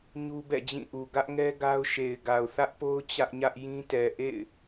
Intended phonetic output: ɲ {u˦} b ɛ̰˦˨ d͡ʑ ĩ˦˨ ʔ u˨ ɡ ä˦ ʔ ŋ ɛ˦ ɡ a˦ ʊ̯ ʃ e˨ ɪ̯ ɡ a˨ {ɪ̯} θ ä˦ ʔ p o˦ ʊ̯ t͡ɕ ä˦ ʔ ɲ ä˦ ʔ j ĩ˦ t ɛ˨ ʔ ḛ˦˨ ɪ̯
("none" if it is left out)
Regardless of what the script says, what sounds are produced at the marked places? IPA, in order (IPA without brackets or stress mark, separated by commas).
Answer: u˦, ʊ̯